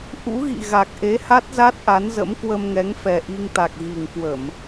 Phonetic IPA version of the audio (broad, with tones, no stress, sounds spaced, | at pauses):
ʔ ṵ˧˥ ɣ ḭ˧˨ ɣ a˨˩ k̚ ʔ e˨˦ h a˦˥ t̚ z a˦˥ t̚ ʔ a˨˦ n z ə̰˧˥ m k w ə˧ m ŋ ɛ˨˦ ŋ f ɛ˨˩ ʔ i˧ ŋ t̪ a˨˩ k̚ ɣ i˨˩ ŋ k w ə˧˩˨ m